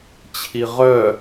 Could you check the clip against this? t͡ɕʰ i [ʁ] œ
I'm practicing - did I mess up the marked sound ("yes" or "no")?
no